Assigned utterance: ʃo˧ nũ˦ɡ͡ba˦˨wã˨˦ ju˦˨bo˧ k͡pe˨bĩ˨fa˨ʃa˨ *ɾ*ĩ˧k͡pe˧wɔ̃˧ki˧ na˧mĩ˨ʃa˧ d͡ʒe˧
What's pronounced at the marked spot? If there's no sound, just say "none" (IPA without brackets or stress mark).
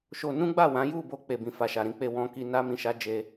ɾ